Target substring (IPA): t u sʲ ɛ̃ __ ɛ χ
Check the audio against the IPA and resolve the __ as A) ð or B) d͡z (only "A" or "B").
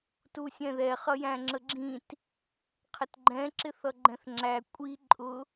A